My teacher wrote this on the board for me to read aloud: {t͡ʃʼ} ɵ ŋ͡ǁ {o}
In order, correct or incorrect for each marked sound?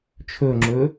incorrect, incorrect

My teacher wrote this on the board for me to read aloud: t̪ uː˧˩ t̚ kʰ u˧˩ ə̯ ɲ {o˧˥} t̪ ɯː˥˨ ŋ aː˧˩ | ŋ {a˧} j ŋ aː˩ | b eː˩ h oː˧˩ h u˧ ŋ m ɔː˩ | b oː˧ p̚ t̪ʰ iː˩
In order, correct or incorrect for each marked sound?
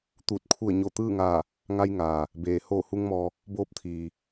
incorrect, correct

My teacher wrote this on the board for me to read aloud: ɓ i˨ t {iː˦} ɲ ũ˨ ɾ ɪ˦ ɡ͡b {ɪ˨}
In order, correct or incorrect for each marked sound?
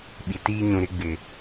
correct, correct

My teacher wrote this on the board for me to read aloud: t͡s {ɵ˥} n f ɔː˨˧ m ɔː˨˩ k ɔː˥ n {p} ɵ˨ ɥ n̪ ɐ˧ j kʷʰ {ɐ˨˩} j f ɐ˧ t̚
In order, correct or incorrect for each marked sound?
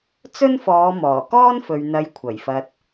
correct, incorrect, correct

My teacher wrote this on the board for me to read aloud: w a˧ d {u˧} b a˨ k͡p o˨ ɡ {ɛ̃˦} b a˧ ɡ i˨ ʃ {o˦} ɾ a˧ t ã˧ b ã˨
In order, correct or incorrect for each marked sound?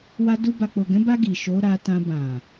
correct, incorrect, incorrect

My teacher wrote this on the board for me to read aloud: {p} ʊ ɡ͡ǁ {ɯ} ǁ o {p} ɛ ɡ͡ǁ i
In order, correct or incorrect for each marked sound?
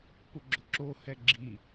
correct, incorrect, incorrect

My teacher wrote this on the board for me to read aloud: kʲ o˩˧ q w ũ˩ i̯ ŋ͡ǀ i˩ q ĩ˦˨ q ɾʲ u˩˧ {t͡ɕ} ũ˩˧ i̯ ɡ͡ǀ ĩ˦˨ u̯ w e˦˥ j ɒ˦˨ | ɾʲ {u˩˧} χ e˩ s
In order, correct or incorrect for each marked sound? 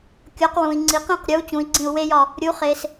correct, correct

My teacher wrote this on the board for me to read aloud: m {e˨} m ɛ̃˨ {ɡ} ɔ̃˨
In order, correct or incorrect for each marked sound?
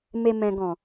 correct, correct

